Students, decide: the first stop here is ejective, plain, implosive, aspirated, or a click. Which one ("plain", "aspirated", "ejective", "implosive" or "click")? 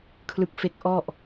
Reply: aspirated